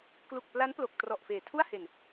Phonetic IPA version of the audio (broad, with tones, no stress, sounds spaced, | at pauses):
k l u˨˩ k̚ p l a˦˥ n p l o˨˩ k̚ t r ɔ˨˩ ʔ f eː˨˩ tʰ u˥˩ a̯ h e˨˩ n